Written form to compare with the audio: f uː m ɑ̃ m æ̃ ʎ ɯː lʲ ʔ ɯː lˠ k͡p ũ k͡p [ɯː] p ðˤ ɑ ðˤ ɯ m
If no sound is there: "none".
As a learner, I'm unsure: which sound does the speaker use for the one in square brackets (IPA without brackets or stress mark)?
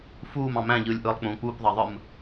uː